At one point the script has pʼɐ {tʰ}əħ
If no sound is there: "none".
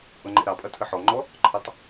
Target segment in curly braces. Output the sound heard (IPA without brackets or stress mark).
tʰ